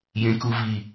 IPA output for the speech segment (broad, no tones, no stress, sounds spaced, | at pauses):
j ẽ k u v i